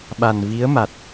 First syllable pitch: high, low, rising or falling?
low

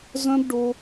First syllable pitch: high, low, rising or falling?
high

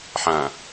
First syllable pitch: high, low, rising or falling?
low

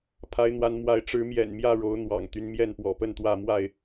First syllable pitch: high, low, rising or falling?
rising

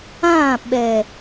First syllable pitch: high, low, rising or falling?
falling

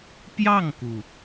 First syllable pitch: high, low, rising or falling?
falling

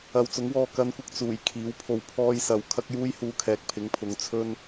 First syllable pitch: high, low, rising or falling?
low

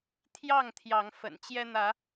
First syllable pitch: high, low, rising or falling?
falling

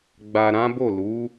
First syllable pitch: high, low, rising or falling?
low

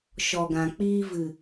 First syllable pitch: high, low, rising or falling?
low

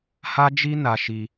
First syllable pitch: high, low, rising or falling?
high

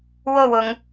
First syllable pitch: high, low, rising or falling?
low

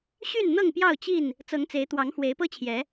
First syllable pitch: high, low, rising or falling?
falling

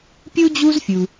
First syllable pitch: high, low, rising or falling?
high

